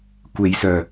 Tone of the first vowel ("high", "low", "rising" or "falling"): low